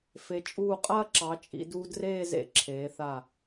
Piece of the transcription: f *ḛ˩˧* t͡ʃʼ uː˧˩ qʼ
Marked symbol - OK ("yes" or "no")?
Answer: no